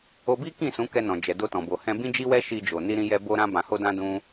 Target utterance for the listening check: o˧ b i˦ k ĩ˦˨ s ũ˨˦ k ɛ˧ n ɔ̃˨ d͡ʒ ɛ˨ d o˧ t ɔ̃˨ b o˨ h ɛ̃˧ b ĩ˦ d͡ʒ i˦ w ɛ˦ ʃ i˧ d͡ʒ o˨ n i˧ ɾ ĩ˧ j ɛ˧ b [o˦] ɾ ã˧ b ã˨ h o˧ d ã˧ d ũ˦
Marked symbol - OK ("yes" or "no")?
no